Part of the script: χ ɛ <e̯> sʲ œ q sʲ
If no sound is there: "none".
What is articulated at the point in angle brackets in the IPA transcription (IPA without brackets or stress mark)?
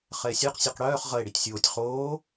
e̯